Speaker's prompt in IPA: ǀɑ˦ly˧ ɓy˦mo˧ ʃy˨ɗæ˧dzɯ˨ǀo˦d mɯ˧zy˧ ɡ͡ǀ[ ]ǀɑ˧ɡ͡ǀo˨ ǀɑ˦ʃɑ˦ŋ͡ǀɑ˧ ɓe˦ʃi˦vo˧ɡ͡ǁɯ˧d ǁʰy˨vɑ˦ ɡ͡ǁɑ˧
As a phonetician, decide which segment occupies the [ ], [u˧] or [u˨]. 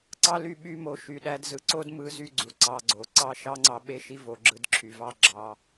u˨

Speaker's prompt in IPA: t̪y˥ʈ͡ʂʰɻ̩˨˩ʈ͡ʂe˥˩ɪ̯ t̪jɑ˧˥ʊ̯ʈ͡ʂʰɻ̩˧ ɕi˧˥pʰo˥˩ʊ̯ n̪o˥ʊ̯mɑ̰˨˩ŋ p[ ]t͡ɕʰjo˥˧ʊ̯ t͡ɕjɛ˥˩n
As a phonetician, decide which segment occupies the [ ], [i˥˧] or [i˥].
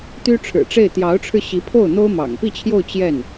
i˥˧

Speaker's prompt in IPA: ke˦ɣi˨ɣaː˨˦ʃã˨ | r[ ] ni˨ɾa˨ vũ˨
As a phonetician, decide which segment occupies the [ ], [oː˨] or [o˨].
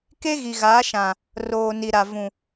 oː˨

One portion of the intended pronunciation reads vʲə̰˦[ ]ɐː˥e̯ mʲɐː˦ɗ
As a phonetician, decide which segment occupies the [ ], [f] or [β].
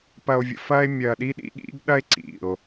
f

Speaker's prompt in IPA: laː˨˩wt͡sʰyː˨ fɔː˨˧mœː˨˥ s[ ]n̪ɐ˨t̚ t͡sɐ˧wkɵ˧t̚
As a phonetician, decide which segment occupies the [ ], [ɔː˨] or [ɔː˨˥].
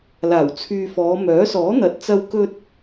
ɔː˨˥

